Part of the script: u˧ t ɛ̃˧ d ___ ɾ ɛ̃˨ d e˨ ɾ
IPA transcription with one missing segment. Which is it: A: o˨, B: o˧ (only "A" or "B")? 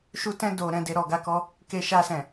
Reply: A